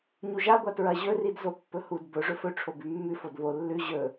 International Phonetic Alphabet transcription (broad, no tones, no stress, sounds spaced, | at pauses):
ɲ u ʒ a ɡʷ a t ɹ ɐ ʑ ɵ r i d z o pː ɵ h u d b ɵ ʐ ɵ f ɵ ʈ͡ʂʰ o b ʉ mː ʉ f o d β o lː ʉ ʑ ɵ